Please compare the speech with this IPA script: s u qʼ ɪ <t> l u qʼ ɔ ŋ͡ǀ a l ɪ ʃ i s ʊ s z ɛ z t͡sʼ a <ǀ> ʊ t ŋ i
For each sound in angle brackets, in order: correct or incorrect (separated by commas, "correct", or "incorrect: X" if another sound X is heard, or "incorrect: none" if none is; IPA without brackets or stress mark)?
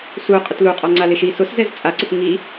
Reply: correct, correct